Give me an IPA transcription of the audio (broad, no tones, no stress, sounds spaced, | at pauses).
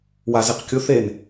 w a z e q kʲ ʊ θ e n